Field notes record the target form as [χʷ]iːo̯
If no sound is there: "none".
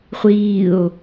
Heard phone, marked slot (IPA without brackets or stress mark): χʷ